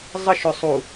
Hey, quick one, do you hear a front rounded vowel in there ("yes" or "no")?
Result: yes